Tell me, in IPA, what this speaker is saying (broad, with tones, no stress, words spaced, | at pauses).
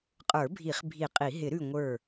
qʼə˞˨˩˦bʱi˨˩˦χ bʱi˨˩˦ qʼi˨˩˦ ɦɪ˨˩˦ɾʉ˧˩ŋʷə˞˧˩